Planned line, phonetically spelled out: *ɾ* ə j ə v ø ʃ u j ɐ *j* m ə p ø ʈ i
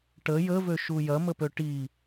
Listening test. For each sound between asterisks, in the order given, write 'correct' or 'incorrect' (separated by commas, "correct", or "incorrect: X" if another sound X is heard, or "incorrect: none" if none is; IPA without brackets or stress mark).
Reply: incorrect: ʈ, incorrect: none